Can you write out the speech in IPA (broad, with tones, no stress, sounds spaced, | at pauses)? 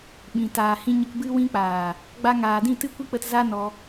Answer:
ɓ ĩ˨ t aː˨ h ĩ˧ ɲ ə˧ k b ɨ˧ w ĩ˧ k͡p aː˨ | ɡ͡b a˧ ŋ aː˨ d ĩ˦˨ t ɨ˦ kʷ i˦ k͡p ə˧ t z a˦ n ɔ˧